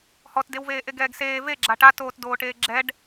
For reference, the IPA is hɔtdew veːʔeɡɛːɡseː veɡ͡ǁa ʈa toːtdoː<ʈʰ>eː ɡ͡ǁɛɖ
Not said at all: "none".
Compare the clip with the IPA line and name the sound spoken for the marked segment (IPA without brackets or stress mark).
ʈ